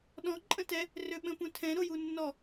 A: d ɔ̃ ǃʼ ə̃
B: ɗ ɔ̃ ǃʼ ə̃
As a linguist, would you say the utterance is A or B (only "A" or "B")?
B